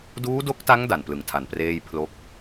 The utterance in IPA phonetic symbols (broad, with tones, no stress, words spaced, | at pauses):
duː˦˥do˦˥k̚ta˦˥ŋ da˨˩nplɯ˩˦ŋtʰa˨˩npreː˥˩j pʰlo˦˥k̚